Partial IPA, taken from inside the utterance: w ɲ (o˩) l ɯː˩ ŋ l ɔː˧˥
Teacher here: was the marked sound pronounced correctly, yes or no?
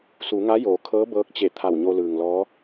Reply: no